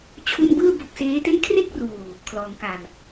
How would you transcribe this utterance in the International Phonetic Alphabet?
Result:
t͡ɕʰ u˥˩ n b ɯː˥˩ b o˦˥ k̚ s eː˦˥ t e˥˩ n kʰ r e˥˩ k̚ r uː˨˩ | kʰ l ɔː˩˦ ŋ k a˨˩ m

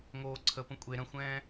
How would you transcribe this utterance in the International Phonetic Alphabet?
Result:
ŋ oː ǀʰ ə p ə̃ kʷʼ e ɾ ə̃ xʷ ɛ̃ː

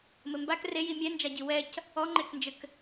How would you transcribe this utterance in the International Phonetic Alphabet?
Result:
m ɘ m b a k r e j i mʲ ɛ n d͡ʒ a ɟ i w ɛ c | ɔ ŋ͡ǃ e k n d͡ʒ ɘ k

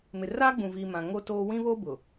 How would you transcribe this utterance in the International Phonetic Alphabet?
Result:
m ɪ˨ r aː˦ ɡ͡b ũ˨ v i˨ m ã˨ ŋ o˦ t oː˦ w ĩ˦ β o˦ b ʊ˨

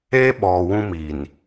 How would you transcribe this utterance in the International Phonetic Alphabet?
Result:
eː˦ ɓ ɔ˨ w ũ˦ m i˨ n

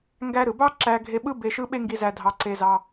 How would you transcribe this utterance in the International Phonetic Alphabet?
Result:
ŋ ɡ æ˧ ɾ ɯ˩ b ɑ˥ ǁ æ˧ ɡʱ e˧ ɓ ɯ˥ b e˧ ʃ ɯ˥ ɓ e˥ ŋ ɡ i˧ z æ˧ dʱ ɑ˧ ǀ e˧ z ɑ˧

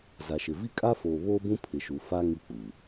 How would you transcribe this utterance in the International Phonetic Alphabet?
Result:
z a˨ ʃ ɪ˨ v i˦˨ kʼ a˦ f oː˨ β oː˦ b ũ˦ pʰ ɪ˨ ʃ u˨˦ f a˦ ŋ i˦˨ k͡p u˨

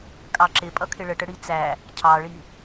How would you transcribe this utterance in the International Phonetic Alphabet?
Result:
kʼ ɑ ǁ ɪ pʼ ʌ kʰ ɪ ɭ ə ʈ ə ɽ i t͡s æ | cʰ ɑ ɭ i

